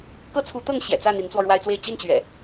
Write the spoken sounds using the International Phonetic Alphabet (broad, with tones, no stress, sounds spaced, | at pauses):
k ɤ˦ t͡sʰ u˨˦ t̪ ɤ˥˨ ŋ ɕ j ɛ̰˨˩ t͡s ä˥˨ n̪ i˨˦ n t͡s w ɔ˧ ɻ w a˦ ɪ̯ t͡s w e˥˨ ɪ̯ t͡ɕ i˥˨ n t͡ɕ ɥ ɛ̰˨˩